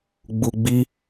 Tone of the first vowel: low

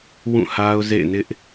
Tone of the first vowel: falling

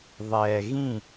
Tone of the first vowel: low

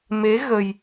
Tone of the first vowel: rising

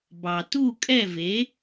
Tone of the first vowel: low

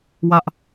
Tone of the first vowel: high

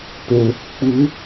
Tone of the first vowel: low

